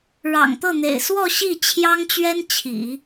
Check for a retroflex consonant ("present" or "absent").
present